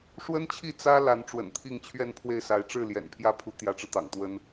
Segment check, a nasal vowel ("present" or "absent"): absent